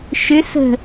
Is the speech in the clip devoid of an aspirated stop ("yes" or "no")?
yes